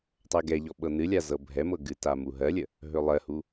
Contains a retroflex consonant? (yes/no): no